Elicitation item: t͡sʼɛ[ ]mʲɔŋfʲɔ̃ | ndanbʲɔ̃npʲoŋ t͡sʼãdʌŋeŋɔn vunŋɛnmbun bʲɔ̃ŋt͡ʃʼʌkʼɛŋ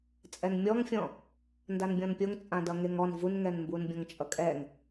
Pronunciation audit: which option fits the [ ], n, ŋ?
n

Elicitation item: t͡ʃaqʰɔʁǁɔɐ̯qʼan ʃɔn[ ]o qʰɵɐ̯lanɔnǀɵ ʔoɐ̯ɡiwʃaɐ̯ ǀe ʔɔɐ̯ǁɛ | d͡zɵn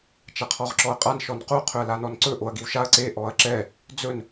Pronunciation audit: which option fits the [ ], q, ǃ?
q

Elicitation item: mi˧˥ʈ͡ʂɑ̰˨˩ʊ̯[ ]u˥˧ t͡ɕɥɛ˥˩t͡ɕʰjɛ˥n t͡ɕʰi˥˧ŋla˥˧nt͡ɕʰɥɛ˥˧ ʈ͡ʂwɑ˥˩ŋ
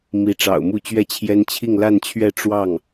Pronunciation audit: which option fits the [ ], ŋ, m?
m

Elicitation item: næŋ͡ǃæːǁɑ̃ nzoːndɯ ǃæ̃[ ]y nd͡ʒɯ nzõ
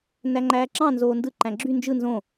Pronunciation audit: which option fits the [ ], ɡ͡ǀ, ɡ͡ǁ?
ɡ͡ǁ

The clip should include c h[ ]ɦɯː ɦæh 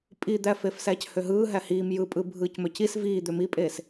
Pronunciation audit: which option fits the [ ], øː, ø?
ø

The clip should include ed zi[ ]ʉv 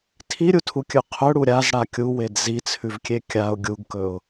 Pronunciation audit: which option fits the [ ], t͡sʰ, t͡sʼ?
t͡sʰ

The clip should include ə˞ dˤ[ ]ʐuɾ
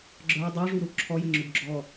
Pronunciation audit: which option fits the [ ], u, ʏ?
u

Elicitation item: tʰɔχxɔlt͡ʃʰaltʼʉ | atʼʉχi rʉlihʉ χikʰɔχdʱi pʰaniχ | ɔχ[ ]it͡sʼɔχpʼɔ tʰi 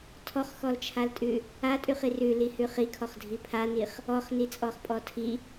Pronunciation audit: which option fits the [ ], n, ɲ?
n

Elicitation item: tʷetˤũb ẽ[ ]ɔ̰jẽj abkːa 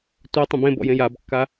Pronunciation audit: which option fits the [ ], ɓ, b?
b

